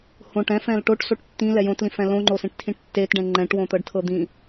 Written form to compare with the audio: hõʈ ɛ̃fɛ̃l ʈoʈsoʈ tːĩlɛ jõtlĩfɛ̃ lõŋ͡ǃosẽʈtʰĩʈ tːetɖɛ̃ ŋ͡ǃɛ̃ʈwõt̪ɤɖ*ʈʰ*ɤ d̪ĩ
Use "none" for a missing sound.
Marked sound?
tʰ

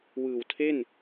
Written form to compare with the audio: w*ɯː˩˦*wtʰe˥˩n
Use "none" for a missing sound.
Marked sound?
ɯː˨˩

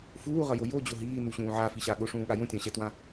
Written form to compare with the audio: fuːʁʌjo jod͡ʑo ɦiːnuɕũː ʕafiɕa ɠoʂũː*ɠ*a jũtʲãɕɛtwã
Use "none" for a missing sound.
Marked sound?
ɠ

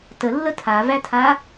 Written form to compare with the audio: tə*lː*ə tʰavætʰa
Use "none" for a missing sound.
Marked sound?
lː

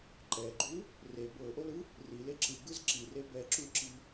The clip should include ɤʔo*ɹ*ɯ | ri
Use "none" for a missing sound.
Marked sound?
l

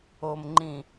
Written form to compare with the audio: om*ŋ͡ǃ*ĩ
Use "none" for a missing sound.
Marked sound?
ŋ͡ǃ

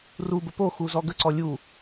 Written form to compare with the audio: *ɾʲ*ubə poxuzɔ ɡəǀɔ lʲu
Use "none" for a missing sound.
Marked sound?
r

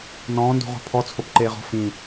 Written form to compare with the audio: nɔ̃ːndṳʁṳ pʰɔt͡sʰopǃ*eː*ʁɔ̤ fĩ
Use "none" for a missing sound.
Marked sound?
eː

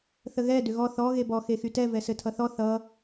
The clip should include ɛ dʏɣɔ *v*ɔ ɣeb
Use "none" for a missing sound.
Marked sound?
θ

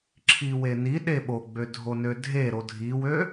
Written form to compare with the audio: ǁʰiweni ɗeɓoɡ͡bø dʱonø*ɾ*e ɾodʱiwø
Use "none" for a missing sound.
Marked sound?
dʱ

